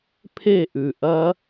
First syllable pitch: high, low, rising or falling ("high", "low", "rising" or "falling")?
falling